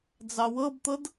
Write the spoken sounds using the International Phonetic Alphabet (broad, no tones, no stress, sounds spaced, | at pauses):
d͡z ɑ w ɤ b t̪ ɤ d